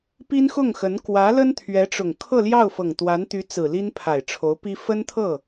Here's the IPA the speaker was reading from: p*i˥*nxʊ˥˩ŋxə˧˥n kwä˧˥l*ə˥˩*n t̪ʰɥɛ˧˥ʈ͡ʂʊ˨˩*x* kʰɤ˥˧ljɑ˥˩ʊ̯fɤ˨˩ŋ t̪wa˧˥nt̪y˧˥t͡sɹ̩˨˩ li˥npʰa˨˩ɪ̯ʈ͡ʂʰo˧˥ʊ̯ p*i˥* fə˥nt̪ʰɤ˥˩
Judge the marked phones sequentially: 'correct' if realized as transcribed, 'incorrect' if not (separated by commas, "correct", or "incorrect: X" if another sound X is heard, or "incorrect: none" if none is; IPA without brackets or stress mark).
correct, incorrect: ə˥, incorrect: ŋ, correct